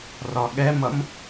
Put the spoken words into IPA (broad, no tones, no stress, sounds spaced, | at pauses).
r ɒ ɠ ɛ m ʌ m